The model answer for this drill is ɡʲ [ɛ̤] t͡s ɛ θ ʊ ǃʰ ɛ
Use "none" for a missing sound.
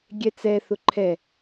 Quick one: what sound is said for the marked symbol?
ɛ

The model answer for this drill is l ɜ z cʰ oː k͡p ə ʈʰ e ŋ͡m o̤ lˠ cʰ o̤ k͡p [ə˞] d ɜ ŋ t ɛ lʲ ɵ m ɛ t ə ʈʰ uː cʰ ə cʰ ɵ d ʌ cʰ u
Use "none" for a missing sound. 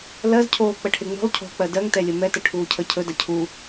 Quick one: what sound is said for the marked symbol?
ɜ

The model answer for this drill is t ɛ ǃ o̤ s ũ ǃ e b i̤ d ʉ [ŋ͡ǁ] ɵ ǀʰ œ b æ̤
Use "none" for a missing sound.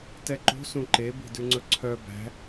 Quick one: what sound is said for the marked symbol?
ŋ͡ǀ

